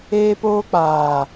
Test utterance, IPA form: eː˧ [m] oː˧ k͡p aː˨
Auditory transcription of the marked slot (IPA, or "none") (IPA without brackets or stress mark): p